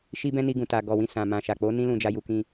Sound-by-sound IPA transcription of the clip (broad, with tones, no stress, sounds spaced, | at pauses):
ʃ i˦ b ɛ̃˦ n i˧ ɡ ũ˨ t a˨ ɡ ɔ˨ w ĩ˧ s ã˨ m ã˨ ʃ a˨ k͡p o˨˦ n ĩ˦ l ũ˧ d͡ʒ a˧ j u˧ k ĩ˦